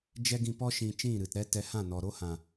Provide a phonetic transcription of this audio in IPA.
d͡ʒɛ˦ɡĩ˧pɔ˦ ʃĩ˧t͡ʃĩ˦˨ɾɨ˨tɾɛ˦ tɛ˧hã˦˨nɔ˨ ɾo˦hã˨

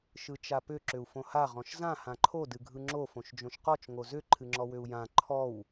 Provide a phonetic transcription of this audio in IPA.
ʃɯt͡ʃapʏ ǁʏu̯fõha ʁɔ̃ʃzã hãǃʰo dɨɡʱɯŋ͡ǁo fõʃd͡ʒõʃqɔt͡ʃ ŋozʏ ǃʰɨŋ͡ǁɔwʏu̯jã ǃʰɔw

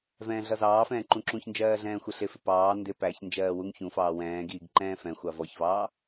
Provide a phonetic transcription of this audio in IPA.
vɛ̃ːɮʌzɑːfɛ̃ː ǃũǁũçnd͡ʒɜː ɮɛ̃ːxʷɪɬɪfɪ pɑː ndɪ pæç nd͡ʒɜːwuŋçũfɑː wɛ̃ːɡiːɡ ǃɛ̃ːfɛ̃xʷɑ vɔçvɑː

